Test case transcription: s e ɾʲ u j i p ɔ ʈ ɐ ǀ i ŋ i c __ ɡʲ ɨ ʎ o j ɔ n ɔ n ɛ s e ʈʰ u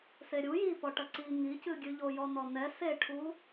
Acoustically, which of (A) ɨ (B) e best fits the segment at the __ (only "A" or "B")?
A